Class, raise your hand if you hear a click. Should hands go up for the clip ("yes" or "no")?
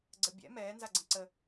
yes